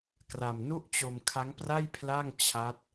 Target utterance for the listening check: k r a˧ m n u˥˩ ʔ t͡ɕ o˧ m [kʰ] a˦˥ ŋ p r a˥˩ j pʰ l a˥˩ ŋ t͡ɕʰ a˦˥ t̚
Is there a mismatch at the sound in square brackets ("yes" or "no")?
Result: no